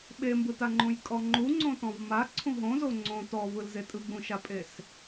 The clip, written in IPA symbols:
ɓembɯtaŋ͡ǃũj kʼɔŋ͡ǃu ŋ͡ǀõtɔ̃vma ǀʰũɦõzo ŋ͡ǀõ tɔvɯlze tʼɯɡ͡bũʃapʼes

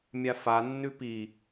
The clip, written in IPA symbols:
mʲafanːʉ pi

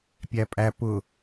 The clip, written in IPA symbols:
pʲæpʼæ pʊ

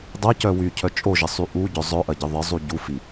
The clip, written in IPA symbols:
dˤɐcœ wycʰœ t͡ʃʼoʒɪsˤy ʔuɟœ zˤœʔɐɟɪ ðˤɪzˤu ɟufi

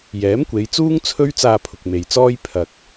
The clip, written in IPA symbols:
jɛː˨˥mkʷe˨˧jt͡suː˥ŋ t͡sʰɵ˥ɥ t͡saː˧pʰʊ˨k̚ me˨jt͡sɔː˥j pʰɐ˧k̚

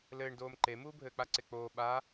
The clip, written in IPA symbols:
lɘːɳdoːm ǃe muːbʱɘːk͡paǀe k͡poː ɓa

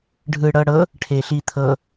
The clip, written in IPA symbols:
ɖʱɯɽɤɽɤ | ʈʰeɬit̪ʰɤ

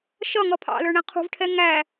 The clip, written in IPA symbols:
ʃʌ ŋʌpʰɑ̰lə˞ ɳæ̃qʰṳvʈʰɛ ŋæ

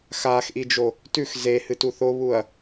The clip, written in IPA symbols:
xaxʔid͡ʒo | tʉx zehɨtu θoβuɐ̯

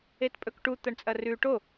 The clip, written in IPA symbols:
etpʼɵkʈu t̪ɐɳt͡sʼɐrʉ ʈo

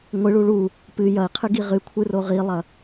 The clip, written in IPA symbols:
ŋʷɨɭu ɭu | pɨ jɐi̯qʰɨ ɡiʁɨkʷʰɨ roʁilˠɐ

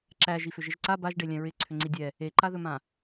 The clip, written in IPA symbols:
ǁæ ʒifʏʒɪʒǀa baʒɖe lʲɛ̃ɹɪ ǀʰʏŋ͡ǀidʲɛ | eǃaðɵmã

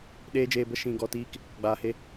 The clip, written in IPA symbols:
ɗeː˦d͡ʒeː˧bə˦ ʃĩ˧ɡɔ˧tiː˦k | ɡ͡baː˨he˧

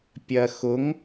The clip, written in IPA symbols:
pʲɜxʊŋ

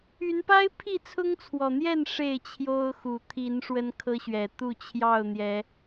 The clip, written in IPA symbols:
y˨˦npa˦ɪ̯ pʰi˥˨t͡sʰʊ˦ŋt͡sʰwɔ˨˩n̪jɛ˥˨n ʂe˥˨ɪ̯t͡ɕʰjo˦ʊ̯ xu˨˩t̪ʰi˨˦n ʂwə˦nkʰɤ˦ɕɥɛ˨˩ t̪u˥˨t͡ɕʰjɑ˥˨ʊ̯ n̪jɛ˨˦

